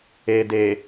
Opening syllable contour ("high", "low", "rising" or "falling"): low